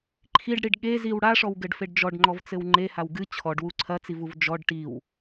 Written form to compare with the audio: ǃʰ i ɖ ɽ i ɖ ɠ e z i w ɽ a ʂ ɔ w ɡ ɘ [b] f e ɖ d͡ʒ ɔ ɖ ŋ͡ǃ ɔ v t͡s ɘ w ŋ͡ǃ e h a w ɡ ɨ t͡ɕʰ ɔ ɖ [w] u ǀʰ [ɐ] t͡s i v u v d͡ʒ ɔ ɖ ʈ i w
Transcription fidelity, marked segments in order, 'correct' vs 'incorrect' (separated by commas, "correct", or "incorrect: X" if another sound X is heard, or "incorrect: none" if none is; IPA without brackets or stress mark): incorrect: ɖ, correct, correct